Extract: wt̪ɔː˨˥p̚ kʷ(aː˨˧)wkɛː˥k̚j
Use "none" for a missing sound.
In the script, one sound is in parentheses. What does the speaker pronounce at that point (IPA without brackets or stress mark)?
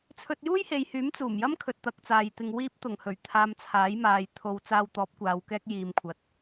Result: aː˨˧